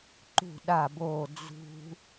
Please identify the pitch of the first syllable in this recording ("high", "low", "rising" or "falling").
falling